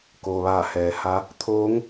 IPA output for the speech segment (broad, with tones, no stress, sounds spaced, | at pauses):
k oː˩ ʋ aː˧˩ h ɛː˩˧ h a˧˥ | t̪ʰ oː˧˥ ŋ